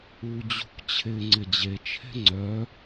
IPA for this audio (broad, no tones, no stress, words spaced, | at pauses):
ud͡ʑṳk t͡ɕʰɪ ŋ͡ǀɪd͡ʑet͡ʃʰe̤ ŋ͡ǀœ